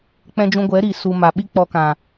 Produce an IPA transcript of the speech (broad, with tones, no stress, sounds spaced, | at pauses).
k͡p ɛ̃˧ d͡ʒ ũ˧ ɡʷ ɛ˨˦ ɾ i˨ s u˨ m a˨ ɓ i˦ k͡p ɔ˧ k ã˨